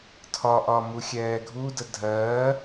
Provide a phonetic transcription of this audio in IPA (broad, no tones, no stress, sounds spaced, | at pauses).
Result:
tʰ ɒ ʔ ɒ m u xʲ ɛː ɡʱ u d ə dʱ ɜː